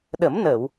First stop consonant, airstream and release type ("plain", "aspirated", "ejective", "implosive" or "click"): implosive